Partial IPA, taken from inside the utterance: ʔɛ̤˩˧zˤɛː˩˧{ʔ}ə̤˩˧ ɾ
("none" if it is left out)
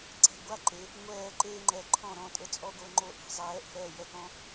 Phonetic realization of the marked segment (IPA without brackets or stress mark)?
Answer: ʔ